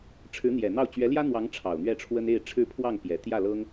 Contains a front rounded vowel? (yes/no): no